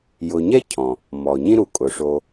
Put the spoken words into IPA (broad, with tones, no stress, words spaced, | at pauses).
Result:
jʊ˨ɲɛ˥cʰɔ̃˩ | mɔ˩ɲĩ˥ ɾu˩kʼʊ˩ ʂo˨